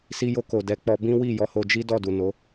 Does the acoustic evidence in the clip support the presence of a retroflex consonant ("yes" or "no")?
no